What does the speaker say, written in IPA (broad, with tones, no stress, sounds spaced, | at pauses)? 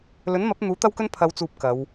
l ɵ˨˥ n m ɐ˨˥ p̚ n̪ uː˨˥ t̪ ɐ˥ w k ɵ˥ n pʰ ɐ˨˧ w t͡s uː˨ p̚ k ɐ˨˧ w